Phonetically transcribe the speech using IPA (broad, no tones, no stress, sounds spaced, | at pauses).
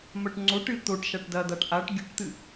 m ɐ ʈ ŋ͡ǀ o ʈ ɨ t̪ o ʈ ʃ a ʈ d ɐ d̪ a ʈ ʔ a ʈ ɡʲ ʉ ʈ t̪ ɨ